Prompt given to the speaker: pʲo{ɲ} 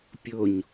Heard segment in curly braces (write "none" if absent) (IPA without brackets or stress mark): ɲ